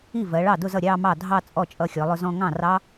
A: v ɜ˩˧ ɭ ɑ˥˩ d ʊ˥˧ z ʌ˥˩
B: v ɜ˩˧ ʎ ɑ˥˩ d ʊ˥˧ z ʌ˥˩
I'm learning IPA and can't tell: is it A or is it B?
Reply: A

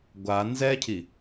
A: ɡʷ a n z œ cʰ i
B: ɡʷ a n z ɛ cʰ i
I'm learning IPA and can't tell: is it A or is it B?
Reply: B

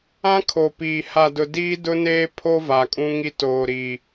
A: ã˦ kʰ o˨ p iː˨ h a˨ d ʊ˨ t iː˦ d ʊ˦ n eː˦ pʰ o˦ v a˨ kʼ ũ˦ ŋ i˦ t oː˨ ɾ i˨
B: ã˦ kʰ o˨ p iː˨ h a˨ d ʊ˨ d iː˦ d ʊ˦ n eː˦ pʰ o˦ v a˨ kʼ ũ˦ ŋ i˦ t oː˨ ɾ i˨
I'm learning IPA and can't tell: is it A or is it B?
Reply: B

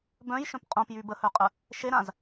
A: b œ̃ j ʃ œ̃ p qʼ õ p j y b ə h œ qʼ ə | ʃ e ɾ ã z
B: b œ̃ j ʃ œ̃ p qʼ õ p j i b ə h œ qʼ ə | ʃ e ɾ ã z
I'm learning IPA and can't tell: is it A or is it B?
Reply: A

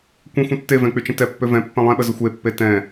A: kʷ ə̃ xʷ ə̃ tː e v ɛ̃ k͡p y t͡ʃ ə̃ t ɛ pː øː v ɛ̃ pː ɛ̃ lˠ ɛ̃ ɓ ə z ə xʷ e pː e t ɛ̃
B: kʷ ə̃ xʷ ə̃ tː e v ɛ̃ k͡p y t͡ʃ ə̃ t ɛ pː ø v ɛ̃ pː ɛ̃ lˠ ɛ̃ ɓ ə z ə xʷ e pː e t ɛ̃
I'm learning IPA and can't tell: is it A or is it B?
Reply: B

